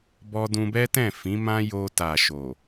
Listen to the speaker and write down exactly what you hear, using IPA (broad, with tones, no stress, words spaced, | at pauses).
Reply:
bɔ˧dũ˧bɛ˦tɛ̃˦˨ fĩ˨˦mã˦ jo˧ta˨ ʃo˨